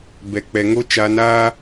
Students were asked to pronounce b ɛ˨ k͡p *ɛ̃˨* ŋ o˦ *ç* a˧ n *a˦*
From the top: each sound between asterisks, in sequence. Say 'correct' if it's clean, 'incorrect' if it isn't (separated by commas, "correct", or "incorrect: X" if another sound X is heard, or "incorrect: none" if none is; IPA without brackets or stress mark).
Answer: incorrect: ɛ˨, incorrect: t͡ʃ, incorrect: aː˦